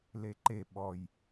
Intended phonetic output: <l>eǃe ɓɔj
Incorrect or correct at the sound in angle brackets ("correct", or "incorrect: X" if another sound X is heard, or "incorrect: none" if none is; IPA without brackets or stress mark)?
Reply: correct